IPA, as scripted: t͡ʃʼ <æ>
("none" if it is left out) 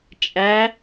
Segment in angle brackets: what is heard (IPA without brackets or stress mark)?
æ